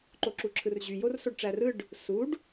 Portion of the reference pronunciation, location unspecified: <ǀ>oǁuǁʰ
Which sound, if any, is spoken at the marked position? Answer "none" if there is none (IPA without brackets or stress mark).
ǃ